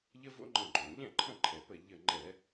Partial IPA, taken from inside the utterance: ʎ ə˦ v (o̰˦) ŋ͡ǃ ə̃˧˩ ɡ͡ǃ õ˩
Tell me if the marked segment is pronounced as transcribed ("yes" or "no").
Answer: yes